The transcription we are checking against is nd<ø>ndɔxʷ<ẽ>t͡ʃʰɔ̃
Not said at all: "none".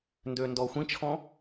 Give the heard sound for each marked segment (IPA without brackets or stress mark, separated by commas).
ø, ĩ